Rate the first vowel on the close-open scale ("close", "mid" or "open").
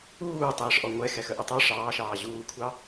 close